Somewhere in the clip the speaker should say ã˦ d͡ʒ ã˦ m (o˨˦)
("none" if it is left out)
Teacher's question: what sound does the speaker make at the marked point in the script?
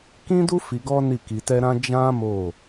o˦˨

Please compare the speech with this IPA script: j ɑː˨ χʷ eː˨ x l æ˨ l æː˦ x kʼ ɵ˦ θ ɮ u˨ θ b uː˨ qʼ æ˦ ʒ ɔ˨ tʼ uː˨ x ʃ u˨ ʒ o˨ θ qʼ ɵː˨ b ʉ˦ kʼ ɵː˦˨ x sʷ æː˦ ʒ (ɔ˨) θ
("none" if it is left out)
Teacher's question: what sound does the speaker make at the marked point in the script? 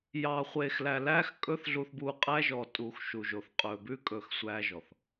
ɔ˨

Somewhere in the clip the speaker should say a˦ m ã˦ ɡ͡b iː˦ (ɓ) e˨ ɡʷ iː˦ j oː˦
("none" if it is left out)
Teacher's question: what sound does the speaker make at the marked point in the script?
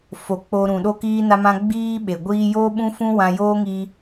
ɓ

